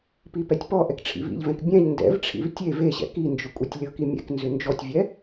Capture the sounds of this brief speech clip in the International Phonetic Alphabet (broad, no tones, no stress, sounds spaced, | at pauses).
p i p ɛ tʲ p ɔ ʔ ɛ k ʈ͡ʂʰ ḭ v ḭ ʎ v ɛ̃ k bʲ ɛ̃ ʎ n d ɛ̰ v ʈ͡ʂʰ ḭ v tʲ e v e ɕ ɛ̰ k i n d͡ʒ ʏ kʷʼ ɛ tʲ lʲ ɤ k i mʲ ɛ̰ k n z ʏ n d͡ʒ ɔ tʲ vʲ ɛ